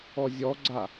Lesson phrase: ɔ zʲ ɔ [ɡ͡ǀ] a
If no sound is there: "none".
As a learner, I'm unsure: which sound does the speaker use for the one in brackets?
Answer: ɡ͡ǀ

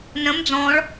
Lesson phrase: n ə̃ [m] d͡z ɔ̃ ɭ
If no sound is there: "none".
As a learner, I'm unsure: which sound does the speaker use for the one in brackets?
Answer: m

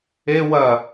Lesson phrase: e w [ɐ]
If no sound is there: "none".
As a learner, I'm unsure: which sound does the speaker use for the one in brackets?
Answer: ɐ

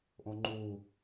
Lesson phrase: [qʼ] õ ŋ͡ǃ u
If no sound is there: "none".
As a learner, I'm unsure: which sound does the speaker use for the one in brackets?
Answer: ʔ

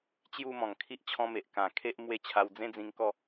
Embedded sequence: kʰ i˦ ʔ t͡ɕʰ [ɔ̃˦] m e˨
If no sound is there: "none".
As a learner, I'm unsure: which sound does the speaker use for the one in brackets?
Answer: ɔ̃˧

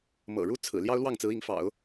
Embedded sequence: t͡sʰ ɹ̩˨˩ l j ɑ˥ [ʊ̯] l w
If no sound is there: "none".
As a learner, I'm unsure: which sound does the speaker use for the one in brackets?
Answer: ʊ̯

